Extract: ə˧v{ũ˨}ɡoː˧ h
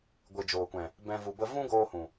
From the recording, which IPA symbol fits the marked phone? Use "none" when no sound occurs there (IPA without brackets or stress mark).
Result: ũ˦